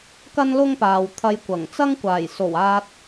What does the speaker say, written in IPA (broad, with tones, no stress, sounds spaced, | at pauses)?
k ɐ˥ n l ʊ˥ ŋ p aː˨ w t̪ʰ ɐ˧ j kʷ ɐ˨˩ ŋ t͡s ɐ˥ ŋ kʷ aː˨˩ j s o˨˩ w aː˧ t̚